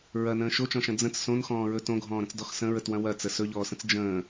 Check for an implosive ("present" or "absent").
absent